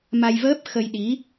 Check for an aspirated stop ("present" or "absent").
absent